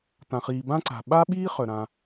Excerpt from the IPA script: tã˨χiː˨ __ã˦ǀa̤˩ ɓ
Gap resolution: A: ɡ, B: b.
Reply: B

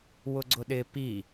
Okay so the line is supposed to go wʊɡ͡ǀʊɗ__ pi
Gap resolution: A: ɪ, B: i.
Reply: A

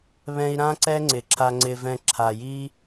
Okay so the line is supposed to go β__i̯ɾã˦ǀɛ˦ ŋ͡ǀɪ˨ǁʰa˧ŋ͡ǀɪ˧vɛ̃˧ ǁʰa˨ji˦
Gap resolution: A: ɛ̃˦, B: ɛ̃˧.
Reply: B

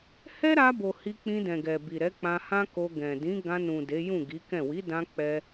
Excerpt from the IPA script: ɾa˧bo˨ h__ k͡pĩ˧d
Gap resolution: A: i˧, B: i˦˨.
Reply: A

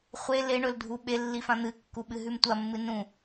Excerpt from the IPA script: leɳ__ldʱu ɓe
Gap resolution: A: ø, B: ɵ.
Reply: B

